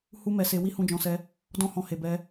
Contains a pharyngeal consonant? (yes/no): no